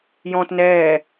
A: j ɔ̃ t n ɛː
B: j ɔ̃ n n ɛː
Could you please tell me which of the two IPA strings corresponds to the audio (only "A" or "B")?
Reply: A